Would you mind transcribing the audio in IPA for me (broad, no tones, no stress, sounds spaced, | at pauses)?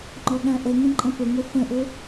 ŋ͡ǃ ɔ ɠ æ̃ ʔ ə ŋ ə̃ ǃʼ ə̃ p ʊ ŋ ʊ f ə̃ ʔ ʊ